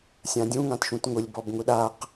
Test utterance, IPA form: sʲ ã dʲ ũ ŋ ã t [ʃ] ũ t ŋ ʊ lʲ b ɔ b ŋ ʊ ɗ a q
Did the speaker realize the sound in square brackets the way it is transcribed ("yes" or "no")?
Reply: yes